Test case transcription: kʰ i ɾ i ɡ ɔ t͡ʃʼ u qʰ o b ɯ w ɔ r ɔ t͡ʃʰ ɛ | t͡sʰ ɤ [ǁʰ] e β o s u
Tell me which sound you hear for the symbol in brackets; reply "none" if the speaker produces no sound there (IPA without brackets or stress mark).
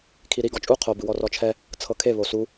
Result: kʰ